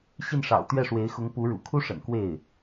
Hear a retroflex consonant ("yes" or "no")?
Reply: yes